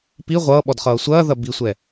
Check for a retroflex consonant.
absent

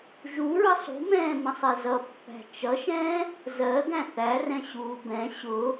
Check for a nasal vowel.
present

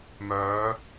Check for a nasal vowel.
absent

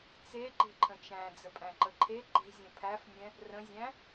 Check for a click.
present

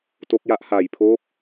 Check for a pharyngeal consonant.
absent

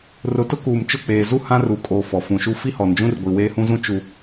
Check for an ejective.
present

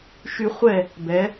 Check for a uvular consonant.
present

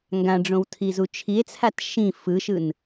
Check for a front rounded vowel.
absent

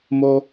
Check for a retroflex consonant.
absent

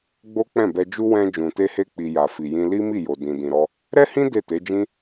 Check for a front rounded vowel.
absent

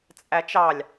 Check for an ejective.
present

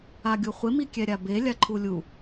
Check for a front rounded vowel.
absent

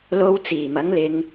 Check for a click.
absent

